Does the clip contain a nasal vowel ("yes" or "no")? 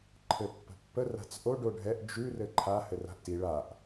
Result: no